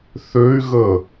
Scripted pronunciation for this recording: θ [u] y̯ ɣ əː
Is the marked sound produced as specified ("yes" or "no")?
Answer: no